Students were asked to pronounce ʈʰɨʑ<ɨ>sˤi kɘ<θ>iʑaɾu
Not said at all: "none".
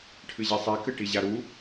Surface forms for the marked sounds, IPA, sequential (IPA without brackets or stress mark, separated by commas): e, ʈ